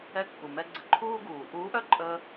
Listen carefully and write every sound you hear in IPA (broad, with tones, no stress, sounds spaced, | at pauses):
ɛ˧ kː u˩ m ɛ˧ ɡ͡ǀ ə˧ ǃʰ uː˥ ɡ uː˩ ʔ uː˧˥ ʔ œ˥ ǃʼ ə˧